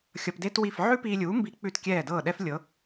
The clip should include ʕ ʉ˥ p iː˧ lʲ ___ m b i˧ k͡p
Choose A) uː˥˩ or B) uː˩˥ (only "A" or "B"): B